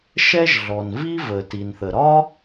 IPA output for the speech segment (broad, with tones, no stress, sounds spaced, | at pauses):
ʃ ɛ˥ ʒ ɮ ɔ˩ n v i˥ v ə˩ t i˩ n θ ə˩ ɾ ɒ˥